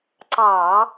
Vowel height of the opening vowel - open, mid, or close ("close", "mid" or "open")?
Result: open